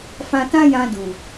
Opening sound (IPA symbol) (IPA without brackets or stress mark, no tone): f